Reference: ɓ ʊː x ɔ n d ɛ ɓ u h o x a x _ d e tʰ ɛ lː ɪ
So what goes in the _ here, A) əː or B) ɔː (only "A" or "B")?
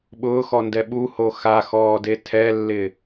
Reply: B